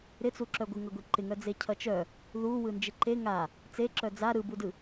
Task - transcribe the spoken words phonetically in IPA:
ɾ ɪ t͡s u ǁ œ ɡʷ ɯ ŋ ʌ ɡʷ i ǃ ɪ ŋ œ d͡z e cʰ ʌ t͡ʃ œ | ð u w ɯ n d͡ʒ ɪ ǃ e ŋ a | t͡s e ǁ œ d͡z a ɾ ɯ b u d ɯ

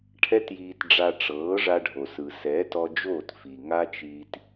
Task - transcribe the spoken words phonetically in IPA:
ʈʰ ɛ˦ t j iː˧ t ɖ͡ʐ a˧ ʈ͡ʂ ɤː˨˦ ʐ a˧ ɖʱ o˨ s ɯ˨ s ɛː˨˦ t ɔ˧ d͡ʒ oː˦˨ t f i˨ ŋ a˦ t͡ʃ iː˧ t

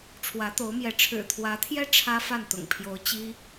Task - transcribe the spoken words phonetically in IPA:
ʈ͡ʂʰ w ä˧˥ t̪ o˧˥ ʊ̯ m j ɛ˧˥ ʈ͡ʂʰ ɻ̩˨˩ t̪ʰ w ä˧˥ t̪ʰ j ɛ˥ ʈ͡ʂʰ ä˥ f a˥˩ n t̪ ʊ̰˨˩ ŋ pʰ j o˧˥ ʊ̯ t͡ɕ i˥

